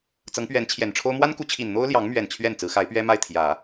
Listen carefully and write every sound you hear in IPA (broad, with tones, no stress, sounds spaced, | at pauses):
t͡s ɤ˧˥ ŋ p ɥ ɛ˧˥ n t͡ɕʰ j ɛ˨˩ n ʈ͡ʂʰ o˥ ʊ̯ m w a˥ n k u˧˥ t͡ɕʰ i˨˩ n n̪ o˥ ʊ̯ l j ɑ˧˥ ŋ m ɥ ɛ˨˩ n t͡ɕʰ ɥ ɛ˥˩ n t͡s ɹ̩˧˥ x a˧˥ ɪ̯ p ɥ ɛ˥ m a˥˩ ɪ̯ t̪ʰ j ä˨˩˦